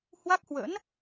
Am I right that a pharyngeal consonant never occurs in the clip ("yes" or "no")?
yes